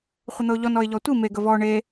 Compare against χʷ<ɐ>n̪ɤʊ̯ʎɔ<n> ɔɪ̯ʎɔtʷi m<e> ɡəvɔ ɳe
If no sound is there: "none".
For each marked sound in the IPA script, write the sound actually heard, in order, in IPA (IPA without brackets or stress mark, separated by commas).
ə, n, e